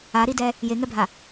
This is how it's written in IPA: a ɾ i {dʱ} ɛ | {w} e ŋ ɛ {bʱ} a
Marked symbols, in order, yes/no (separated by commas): no, no, yes